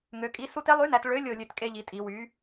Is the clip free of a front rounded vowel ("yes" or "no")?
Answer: no